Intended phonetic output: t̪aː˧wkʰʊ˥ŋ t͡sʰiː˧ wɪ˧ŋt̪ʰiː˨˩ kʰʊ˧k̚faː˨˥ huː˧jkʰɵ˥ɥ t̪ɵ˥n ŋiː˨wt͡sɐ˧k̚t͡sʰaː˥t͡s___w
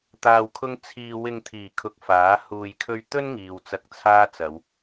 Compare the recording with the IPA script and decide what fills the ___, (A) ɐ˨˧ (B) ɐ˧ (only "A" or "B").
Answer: A